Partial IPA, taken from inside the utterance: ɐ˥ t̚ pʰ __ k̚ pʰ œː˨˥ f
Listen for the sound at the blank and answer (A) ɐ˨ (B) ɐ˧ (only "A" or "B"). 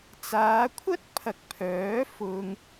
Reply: A